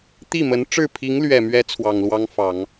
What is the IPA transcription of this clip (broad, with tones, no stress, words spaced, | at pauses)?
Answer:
t̪i˥˩mə˧˥n ʈ͡ʂɻ̩˥˩pʰi˧˥ŋlɥɛ˨˩mɥɛ˧˥ t͡sʰwɑ˨˩ŋlwɑ˥ŋfɑ˨˩˦ŋ